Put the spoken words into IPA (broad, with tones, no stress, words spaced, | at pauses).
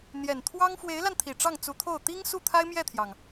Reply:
n̪jɛ˨˩n t̪ʰwɑ˥ŋ fwe˧˥ɪ̯la˧nt̪ʰi˨˩ ʈ͡ʂɑ˥˩ŋt͡su˧˥t̪ʰo˥˩ʊ̯ t̪i˥ŋsu˥˩ t̪ʰa˥ɪ̯mjɛ˥˩t̪ʰjɑ˩ŋ